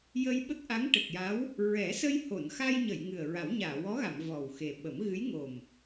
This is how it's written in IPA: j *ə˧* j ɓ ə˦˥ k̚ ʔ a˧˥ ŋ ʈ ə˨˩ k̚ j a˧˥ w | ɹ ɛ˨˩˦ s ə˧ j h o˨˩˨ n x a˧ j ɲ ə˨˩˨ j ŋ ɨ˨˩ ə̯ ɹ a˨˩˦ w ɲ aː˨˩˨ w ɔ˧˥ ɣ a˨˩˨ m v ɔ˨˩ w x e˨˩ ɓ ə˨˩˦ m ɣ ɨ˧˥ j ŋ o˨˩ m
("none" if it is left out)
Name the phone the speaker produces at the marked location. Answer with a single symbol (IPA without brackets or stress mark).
ə˧